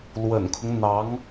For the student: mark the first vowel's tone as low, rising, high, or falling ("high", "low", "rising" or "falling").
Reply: low